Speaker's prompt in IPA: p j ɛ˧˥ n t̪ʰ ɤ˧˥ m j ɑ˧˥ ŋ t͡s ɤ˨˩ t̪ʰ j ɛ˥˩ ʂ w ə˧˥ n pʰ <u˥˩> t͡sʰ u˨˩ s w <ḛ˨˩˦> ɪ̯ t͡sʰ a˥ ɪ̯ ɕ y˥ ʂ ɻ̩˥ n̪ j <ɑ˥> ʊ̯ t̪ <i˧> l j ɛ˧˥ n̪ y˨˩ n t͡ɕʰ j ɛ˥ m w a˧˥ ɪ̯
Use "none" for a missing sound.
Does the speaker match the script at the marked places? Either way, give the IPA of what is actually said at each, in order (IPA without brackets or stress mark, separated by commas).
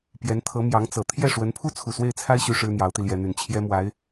u˥, e˥˩, ɑ˧˥, i˧